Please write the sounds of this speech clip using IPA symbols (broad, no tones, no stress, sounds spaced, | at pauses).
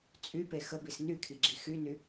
t͡sʼ y p e x ə b i s n y kʰ i ɡ͡ǁ i x y n y